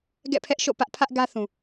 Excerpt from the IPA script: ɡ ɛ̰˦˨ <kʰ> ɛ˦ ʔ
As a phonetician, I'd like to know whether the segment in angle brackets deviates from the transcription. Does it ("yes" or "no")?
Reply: yes